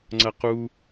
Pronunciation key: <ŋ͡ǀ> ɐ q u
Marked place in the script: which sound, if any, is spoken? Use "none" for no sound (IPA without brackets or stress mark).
ŋ͡ǀ